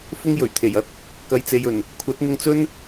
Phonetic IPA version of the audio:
f ʊ˥ ŋ j ɵ˨˩ ɥ t̪ʰ e˨˩ j ɐ˥ t̚ | k ɐ˨ j t͡s e˨ j ɵ˨˩ n | kʷʰ ɐ˨˥ t̚ n̪ ʊ˧ ŋ t͡s ɵ˥ n

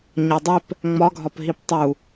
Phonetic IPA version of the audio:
ɲ ɒ dˤ e p | ŋ͡m ɒ ɡʱ ɒ p ɦ i p tˤ u

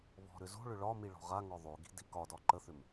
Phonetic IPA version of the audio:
β ɔ̤ ɾ ʏ z o̤ ɭ ʏ ɭ ɒ m i ɭ ɔ̤ ʁ a ŋ ɔ ðˤ o ɡ i̤ d i k ɒ d ɒ ǃ ə θ ʏ m

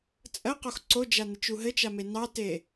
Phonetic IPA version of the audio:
t͡sʼ ɜ q o x ǀ o d͡ʒ a n ɘ t͡ʃ u ɦ ɘ t͡ʃ a m e n ɑ t e

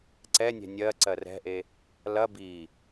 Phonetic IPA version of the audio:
ǀ ɛ nʲ ɛ̤ nʲ ɜ ǀ ɜ r ɛ̤ ʔ e | l ɐ b i

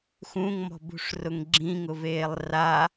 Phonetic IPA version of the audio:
x ũ ŋ m ɔ̤ b ṳ ʂ r ʊ ŋ ɡ͡ǁ ĩ ŋ ʊ v eː lˠ r a

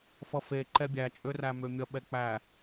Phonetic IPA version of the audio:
f ʌ f e ǃ ɛ bʲ æ t͡ʃʼ ø r æ m ø mʲ ʌ ɓ ɛ k͡p æ

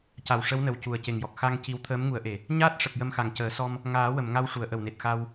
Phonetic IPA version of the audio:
c a˨˩ w ʂ ə˧˥ w n ə˨˩ w c u˨˩ ə̯ c e˨˩ ŋ j ɔ˨˩ k̚ x a˧ ŋ c i˧ w t̪ʰ əː˧˥ m ŋ u˨˩˦ ə̯ ʔ e˨˩ | ɲ aː˦˥ t̚ ʂ ə˨˩ k̚ j ə˧ m x a˨˩ ŋ c əː˨˩˦ s ɔ˧ m | ŋ aː˨˩˦ w ə˨˩˨ m ŋ a˧ w ʂ u˨˩˨ ə̯ ʔ ə˨˩ w n e˨˩ t̚ x a˧ w

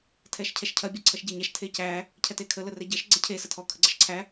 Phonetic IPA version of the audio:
tʰ ɛ ʃ cʰ ɛ ʃ cʰ ɐ bʲ ɔ ǀʰ ɐ ʃ ɟ e ɲ æ ʃ tʰ e c æ | cʰ ɛ t e kʰ ə l ə r ɛ ɟ ɐ ʃ ɡ͡ǀ ɛ cʰ e s ɐ tʰ ɔ kʰ ə ɡ͡ǀ ɐ ʃ ǀʰ æ

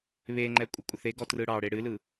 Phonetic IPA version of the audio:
β e ŋ͡ǃ ɛ kʷʼ ɪ kʷʼ ɪ θ e ɡ ɔ t r ɯ ɽ ɑ ɽ e ɽ ɨ l ɯ

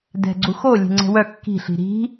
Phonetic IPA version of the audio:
d ɛ̤ ɡ͡ǀ u x o lʲ e̤ ŋ͡ǀ ɛ̤ w œ kː i̤ ɬ i̤ ɾ i̤

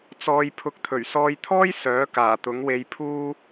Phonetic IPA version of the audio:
t͡s ɔː˧ j pʰ ʊ˨˥ k̚ t̪ʰ ɵ˨˩ ɥ s ɔː˧ j t̪ʰ ɔː˥ j s œː˨˥ k aː˨˩ t̪ ʊ˨˥ ŋ w e˧ j pʰ uː˥

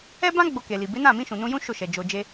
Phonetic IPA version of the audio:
ɛ˦ b ã˦ ɡ͡b o˧ k e˨ l i˨ b e˨˦ n ã˦˨ m ĩ˧ ʃ ũ˨ n ũ˧ j ũ˦ ʃ o˦˨ ʃ ɛ˨ d͡ʒ o˧ d͡ʒ e˦

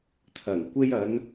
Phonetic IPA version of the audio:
t̪ʰ ɐ˨˩ ŋ kʷ e˧ j ɐ˨˧ n

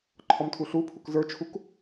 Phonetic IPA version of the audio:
ǃʰ ɔ m tʰ u ɬ u pʰ u k z ə˞ t͡ʃʰ u k

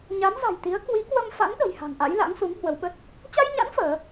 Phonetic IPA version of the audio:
ɲ a˨˦ m z a̤˨˩ j t̪ i˨˦ ə̯ k w i˨˦ k w ə˧ m f a̰˧˥ n ɗ ə̤˨˩ j h a̤˨˩ ŋ ʔ a̰˧˥ j l a̰˧˥ ŋ s u˨˦ ŋ h w ə˨˦ w ɓ ə˦˥ t̚ | t͡ɕ a˧ j ɲ a̰˧˥ n f əː˨˦

